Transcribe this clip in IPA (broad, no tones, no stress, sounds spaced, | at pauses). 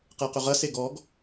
q ɛ q ʏ ʁ ɐ s e ɡ ɔ ɡ